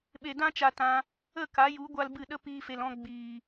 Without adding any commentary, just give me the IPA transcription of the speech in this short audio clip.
ɓe˨dã˧ t͡ʃa˧tã˧ | ə˦˨ ka˨˦ju˨˦ ɡʷa˦lbɨ˦˨ ɗə˦ piː˧ fe˨lɔ̃˧ ɡ͡biː˨

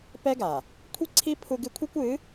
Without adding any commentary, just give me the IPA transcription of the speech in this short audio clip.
pɛ˦ɡa˨ | kʷʰi˦ǀʰi˦ pʰu˦ɡɨ˦ kʷʰɛ˦kʷɨ˨˦

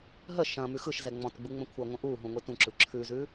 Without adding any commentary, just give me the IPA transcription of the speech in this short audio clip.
ɦə ʃɐ̃ mʉxɯʃzɛ ŋ͡mɔ̃tɡ͡bu ŋ͡mə̃kʷʰəŋʷə̃ ʔuɦũ ŋʷitũǁɯ ǁʰʉzʉ

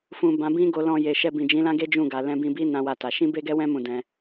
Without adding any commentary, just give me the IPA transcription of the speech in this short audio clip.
fũ˨ bã˨˦ bĩ˦ɡo˧lɔ̃˧ je˨ʃɛ˧bĩ˨ d͡ʒĩ˨˦lã˦ɡe˦ d͡ʒũ˦˨ɡa˨ lɛ̃˧bĩ˧bi˦ nã˦wa˦ta˧ ʃĩ˦be˦ɡɛ˦wɛ̃˦ mũ˦˨dɛ̃˧

